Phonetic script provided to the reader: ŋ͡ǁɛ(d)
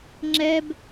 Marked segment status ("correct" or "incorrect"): incorrect